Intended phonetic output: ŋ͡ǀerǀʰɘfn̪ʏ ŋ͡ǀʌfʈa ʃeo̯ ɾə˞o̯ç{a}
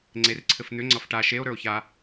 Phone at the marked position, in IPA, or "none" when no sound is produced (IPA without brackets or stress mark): a